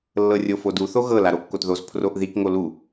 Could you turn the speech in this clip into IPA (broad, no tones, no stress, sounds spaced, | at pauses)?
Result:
lː ɤ rʲ o f o d u θ o ɣ ɤ l a ɾ o kː o t ð o z pʰ r o ʔ ð i k ŋ o l u